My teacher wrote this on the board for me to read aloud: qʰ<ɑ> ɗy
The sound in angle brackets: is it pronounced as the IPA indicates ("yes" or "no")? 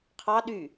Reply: yes